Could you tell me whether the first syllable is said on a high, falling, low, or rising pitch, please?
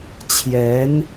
rising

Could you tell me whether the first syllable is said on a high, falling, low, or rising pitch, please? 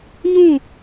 falling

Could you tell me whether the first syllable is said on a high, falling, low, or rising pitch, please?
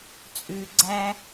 low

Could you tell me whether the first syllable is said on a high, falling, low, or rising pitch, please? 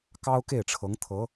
high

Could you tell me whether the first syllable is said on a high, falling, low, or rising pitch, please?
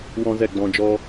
high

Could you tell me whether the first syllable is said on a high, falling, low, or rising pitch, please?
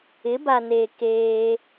rising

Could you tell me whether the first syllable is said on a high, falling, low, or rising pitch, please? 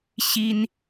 high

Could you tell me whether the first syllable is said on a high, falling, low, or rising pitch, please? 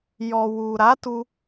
low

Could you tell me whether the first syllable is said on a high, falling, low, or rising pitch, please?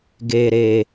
low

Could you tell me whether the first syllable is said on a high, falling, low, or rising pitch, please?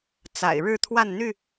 low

